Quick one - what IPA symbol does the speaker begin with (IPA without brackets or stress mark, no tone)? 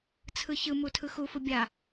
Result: t͡sʰ